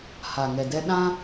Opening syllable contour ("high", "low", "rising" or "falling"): low